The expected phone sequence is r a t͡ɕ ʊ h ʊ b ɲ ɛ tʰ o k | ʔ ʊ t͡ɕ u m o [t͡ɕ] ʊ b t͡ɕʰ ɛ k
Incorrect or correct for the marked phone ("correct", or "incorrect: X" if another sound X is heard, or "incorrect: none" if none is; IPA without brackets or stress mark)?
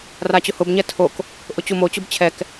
correct